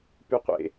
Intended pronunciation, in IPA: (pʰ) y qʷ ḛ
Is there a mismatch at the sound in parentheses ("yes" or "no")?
yes